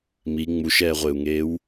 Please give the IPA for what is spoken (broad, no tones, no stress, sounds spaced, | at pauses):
m i ŋ͡m u ʃ ɛː ʁʷ ɪː u̯ ŋ eː w